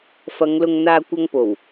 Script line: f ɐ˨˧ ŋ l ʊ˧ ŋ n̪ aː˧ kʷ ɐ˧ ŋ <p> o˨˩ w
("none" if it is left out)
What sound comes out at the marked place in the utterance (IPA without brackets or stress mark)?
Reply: p